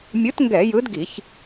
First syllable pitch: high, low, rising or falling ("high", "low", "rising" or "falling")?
rising